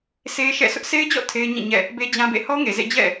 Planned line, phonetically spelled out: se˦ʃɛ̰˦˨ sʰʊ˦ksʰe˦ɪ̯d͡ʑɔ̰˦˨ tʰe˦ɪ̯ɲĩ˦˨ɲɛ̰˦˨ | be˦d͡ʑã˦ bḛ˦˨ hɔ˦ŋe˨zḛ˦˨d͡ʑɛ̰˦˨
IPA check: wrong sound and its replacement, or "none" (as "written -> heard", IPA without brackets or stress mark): k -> ʔ